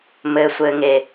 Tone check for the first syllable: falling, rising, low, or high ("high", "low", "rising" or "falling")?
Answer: low